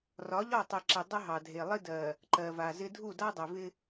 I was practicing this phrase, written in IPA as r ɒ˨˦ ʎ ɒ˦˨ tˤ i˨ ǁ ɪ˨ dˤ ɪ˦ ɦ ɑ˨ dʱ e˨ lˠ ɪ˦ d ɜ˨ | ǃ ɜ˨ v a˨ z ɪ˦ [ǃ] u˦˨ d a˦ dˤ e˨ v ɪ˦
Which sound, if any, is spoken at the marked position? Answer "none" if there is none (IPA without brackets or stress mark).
dʱ